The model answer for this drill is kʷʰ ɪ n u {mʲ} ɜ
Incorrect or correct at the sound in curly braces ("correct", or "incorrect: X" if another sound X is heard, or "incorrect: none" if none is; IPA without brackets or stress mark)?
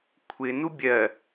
incorrect: bʲ